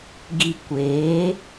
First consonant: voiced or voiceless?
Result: voiced